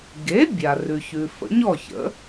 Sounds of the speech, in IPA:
ɡ e˩˥ bʲ a˩ r ʉ˩ ç ʉ˩ f ə̰˩˥ ɲ ɔ˥˩ ç ə̰˩˥

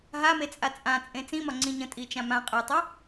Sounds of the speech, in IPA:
ɦ a m e t͡sʼ a t͡sʼ ã t͡sʼ ẽ t͡s ĩ m ɒ ŋ͡ǀ ĩ ɲ ə̃ tʼ i t͡ʃ ã m ã qʼ ɛ tˤ ɛ

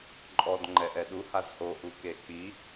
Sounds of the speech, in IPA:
ǃʼ ɔ d ŋ͡ǃ ɛ ʔ ɛ ɗ u h a z h o ʔ u k e k͡p i

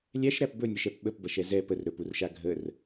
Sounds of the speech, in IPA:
lʲ æ ʃ ɾ æ p b ɵ nʲ ɛ ʃ ɛ p ɓ ə p b ɐ ʃ ɛ z ɛ p ə r ɾ ɵ p u r ʃ a ɡʱ ə r

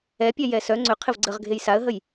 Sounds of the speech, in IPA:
ɛ pʲ ɛ j ɛ s œ ŋ͡ǀ ʏ qʰ ɪ v ɡ͡ǀ ə ʁ ɡʱ e j s a ə̯ ɦ ə j

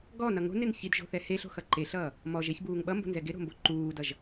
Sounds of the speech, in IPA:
ɡ ɔ n ʌ ŋ o̤ n ɪ n ç i d ʒ o̤ θ ɛ h e ɬ o̤ x ʌ ǃ e ɬ ʌː | m ɔ ʒ e ç b uː ŋ ɓ ʌ m b o̤ n z ɛ ɡ ɪ ɾ o̤ m b o ǃ uː d ʌ ʒ

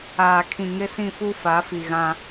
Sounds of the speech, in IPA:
aː˨ kʰ ĩ˨ ŋ ɪ˦ s ĩ˦˨ f u˦ f a˨˦ f i˨ ɣ ã˦

